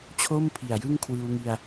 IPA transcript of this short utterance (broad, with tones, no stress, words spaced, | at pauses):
t͡ɕʰo˥˩m pʰi˨˩a̯jɯ˥˩ŋ kʰwɯː˧wŋi˧a̯